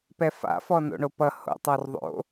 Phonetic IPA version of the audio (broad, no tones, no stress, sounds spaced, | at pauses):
p ɛ f a̰ f ɔ n o̰ ɳ o p ʌ h o̰ tˤ ɔ r ðˤ o̰